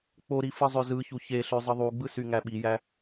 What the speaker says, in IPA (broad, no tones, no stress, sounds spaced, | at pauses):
k͡p o ɾ i f ɯ zˤ ø z ɯ ç u ç e ɬ ø zˤ ɯ ðˤ u ɡ͡b ɯ s y ŋ æ ɓ i j æ